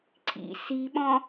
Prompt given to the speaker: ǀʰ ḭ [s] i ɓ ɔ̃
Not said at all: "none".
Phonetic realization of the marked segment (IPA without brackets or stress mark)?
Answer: s